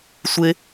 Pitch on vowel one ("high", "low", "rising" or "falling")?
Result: high